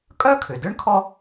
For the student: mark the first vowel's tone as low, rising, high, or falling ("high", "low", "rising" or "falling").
high